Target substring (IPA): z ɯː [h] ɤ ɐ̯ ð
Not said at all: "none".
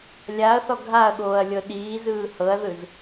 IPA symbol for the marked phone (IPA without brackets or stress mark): h